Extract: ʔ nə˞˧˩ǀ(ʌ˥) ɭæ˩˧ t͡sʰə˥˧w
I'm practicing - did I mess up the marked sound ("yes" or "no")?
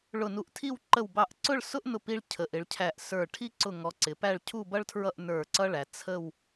no